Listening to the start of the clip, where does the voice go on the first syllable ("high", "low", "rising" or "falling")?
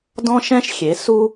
high